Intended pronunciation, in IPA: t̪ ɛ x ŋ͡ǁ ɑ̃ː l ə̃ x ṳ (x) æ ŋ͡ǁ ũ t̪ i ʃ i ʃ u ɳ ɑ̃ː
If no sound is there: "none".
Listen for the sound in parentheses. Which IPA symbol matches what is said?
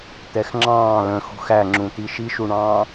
x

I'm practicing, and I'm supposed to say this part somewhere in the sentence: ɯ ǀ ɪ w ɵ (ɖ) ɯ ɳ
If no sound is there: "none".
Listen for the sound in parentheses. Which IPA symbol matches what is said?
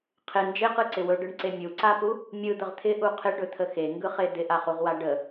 ɖ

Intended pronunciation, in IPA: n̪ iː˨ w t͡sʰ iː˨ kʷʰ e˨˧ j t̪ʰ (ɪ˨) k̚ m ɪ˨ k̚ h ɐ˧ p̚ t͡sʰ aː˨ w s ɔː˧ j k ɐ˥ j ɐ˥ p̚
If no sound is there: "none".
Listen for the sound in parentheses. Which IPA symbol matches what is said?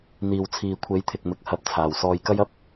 ɪ˨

